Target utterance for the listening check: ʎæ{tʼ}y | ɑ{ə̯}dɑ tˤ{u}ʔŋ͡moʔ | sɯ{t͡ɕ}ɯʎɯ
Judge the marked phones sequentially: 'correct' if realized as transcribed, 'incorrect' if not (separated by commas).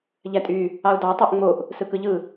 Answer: correct, incorrect, correct, incorrect